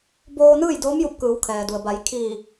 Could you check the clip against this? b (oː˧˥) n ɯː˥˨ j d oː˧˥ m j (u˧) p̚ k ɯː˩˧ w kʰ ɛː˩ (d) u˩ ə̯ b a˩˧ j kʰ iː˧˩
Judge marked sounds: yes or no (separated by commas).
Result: no, yes, yes